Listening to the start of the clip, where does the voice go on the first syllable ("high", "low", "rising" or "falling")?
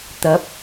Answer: rising